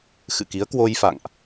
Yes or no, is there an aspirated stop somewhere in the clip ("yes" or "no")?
no